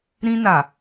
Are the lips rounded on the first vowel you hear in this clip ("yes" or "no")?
no